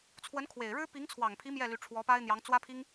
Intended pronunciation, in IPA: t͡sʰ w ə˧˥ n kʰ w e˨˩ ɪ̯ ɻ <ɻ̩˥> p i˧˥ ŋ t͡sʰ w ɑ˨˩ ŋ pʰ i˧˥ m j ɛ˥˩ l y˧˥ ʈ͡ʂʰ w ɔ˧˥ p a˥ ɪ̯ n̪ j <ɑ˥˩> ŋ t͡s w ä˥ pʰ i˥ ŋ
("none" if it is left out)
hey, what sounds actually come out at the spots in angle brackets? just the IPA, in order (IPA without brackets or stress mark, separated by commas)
ɻ̩˥, ɑ˧˥